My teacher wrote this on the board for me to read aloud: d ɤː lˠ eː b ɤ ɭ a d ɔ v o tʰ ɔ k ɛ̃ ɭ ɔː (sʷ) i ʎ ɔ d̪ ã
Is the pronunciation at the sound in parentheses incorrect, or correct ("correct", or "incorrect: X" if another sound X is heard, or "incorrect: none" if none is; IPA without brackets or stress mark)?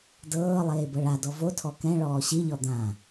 incorrect: ɕ